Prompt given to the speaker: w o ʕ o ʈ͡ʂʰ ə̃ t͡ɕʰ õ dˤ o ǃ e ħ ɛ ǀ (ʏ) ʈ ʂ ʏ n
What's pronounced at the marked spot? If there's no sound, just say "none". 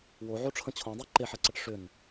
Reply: ə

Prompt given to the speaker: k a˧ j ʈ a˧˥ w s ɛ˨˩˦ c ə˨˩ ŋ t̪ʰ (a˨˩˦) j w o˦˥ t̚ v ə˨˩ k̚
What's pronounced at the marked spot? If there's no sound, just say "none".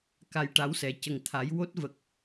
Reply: a˨˩˦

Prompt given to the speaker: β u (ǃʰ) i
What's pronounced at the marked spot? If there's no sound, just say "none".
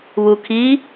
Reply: kʰ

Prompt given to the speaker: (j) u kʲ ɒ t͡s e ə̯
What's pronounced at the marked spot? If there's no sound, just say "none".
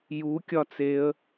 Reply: j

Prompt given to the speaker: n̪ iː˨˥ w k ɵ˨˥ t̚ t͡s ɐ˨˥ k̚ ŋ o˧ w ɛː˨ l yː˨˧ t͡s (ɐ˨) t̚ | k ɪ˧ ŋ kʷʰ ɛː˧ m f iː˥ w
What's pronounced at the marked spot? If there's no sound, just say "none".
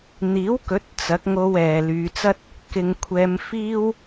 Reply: ɐ˥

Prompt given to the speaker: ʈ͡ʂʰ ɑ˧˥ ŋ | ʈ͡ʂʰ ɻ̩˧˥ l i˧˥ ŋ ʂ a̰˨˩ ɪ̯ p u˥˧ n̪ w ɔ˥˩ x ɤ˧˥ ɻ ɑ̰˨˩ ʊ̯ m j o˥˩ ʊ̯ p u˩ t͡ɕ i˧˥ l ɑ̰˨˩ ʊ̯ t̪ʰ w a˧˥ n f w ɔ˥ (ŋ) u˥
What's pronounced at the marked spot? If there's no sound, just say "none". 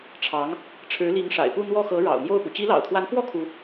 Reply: kʰ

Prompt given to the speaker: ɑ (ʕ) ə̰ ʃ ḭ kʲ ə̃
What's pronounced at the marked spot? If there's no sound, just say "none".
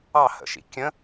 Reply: h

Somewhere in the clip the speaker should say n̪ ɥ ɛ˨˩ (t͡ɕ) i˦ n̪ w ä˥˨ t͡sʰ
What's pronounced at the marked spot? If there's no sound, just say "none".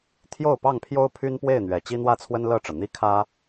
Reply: t͡ɕ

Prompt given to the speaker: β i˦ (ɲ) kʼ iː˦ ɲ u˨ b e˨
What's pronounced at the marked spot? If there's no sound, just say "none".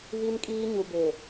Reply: n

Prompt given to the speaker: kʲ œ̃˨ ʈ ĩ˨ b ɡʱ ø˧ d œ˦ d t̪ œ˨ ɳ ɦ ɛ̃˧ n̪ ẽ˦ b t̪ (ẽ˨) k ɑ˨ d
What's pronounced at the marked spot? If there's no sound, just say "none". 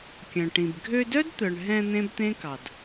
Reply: ẽ˦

